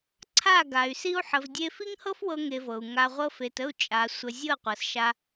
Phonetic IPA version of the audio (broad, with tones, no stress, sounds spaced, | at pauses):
ǀʰ a˦˨ ɡ a˨ y̯ s i˧ u̯ ħ ə˨ v dʲ e˧ f i˦ ŋ h ɤ˦ f w ɤ˧ ŋ e˧ v ɤ˨ u̯ ŋ a˧ ʁʷ ɤ˦ f e˧ t ə˦˨ u̯ t͡ʃʼ a˨ sʷ ə˨ zʲ ɤ˦˨ qʷ ɤ˨ s ʃ a˧